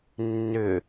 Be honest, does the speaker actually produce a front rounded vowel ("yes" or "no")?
yes